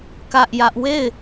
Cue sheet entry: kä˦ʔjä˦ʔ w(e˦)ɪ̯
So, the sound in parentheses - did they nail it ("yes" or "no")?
no